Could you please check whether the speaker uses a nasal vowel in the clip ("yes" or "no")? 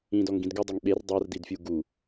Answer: yes